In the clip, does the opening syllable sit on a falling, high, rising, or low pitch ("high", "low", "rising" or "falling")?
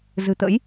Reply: low